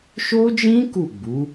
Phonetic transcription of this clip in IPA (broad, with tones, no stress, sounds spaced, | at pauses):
ʃ o˦ d͡ʒ ĩ˦ k u˦˨ ɡ͡b u˨˦